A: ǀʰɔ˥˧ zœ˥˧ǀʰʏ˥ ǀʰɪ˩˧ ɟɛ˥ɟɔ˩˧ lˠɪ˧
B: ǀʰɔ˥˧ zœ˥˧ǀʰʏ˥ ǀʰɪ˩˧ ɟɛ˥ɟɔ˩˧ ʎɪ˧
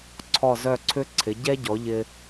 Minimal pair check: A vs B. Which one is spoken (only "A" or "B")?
B